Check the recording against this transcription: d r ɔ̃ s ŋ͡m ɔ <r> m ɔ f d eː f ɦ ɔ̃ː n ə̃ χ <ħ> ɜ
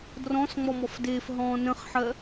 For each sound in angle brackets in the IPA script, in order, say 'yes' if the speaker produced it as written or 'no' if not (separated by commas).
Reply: no, yes